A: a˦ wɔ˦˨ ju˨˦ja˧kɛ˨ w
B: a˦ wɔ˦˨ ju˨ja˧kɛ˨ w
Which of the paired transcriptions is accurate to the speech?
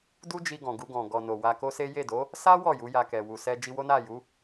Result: A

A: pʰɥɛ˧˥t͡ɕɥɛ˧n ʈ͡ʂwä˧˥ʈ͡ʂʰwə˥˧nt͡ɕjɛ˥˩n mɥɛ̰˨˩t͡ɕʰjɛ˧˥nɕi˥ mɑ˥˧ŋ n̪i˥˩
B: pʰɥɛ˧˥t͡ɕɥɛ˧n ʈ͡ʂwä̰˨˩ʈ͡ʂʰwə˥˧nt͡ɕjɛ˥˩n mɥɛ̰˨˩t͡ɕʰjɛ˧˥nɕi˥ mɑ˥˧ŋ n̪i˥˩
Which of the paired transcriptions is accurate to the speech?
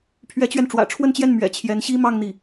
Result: B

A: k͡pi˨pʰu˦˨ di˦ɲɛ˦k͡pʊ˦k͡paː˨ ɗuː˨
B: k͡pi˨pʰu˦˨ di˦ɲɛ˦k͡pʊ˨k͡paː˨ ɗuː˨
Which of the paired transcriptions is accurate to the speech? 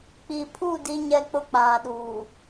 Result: A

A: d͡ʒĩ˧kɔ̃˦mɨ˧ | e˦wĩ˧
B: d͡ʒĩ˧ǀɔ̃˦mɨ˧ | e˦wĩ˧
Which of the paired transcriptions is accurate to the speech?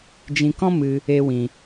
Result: A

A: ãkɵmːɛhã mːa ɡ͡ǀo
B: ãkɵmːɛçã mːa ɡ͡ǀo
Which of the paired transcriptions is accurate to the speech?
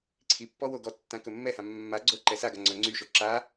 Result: A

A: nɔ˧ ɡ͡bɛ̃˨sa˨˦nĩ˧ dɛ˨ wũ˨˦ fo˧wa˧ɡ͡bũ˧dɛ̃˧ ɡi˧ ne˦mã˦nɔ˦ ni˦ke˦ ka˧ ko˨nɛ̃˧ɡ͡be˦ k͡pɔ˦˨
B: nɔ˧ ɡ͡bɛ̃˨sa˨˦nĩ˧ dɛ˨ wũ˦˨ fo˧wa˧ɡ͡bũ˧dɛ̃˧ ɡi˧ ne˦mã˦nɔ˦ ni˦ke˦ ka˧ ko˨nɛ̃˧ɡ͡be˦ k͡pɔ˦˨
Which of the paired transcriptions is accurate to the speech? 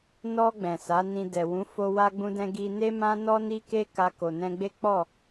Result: A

